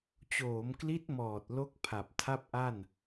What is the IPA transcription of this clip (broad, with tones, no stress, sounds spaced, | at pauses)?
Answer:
t͡ɕ oː˩˦ m k l i˦˥ t̚ m ɔː˨˩ t̚ l o˥˩ k̚ pʰ a˨˩ p̚ tʰ a˥˩ p̚ ʔ a˥˩ n